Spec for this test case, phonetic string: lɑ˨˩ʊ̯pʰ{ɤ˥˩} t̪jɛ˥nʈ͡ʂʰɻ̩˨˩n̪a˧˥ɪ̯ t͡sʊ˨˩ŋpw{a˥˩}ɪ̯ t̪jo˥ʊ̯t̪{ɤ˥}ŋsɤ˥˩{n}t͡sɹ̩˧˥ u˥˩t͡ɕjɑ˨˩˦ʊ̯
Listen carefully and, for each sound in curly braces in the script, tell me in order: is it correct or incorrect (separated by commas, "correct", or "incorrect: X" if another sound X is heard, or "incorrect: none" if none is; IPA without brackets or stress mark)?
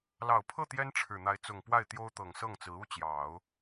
correct, correct, incorrect: ɤ˨˩, incorrect: ŋ